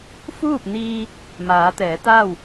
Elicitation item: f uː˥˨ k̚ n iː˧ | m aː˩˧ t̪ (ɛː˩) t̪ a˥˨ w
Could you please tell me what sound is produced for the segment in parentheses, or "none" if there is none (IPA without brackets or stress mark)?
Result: ɛː˩˧